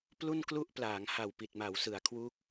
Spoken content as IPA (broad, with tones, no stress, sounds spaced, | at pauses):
p l u˥˩ n k l u˥˩ ʔ p l aː˩˦ ŋ h a˨˩ w p i˨˩ t̚ m a˩˦ w s ɯ˩˦ a̯ kʰ w u˦˥ k̚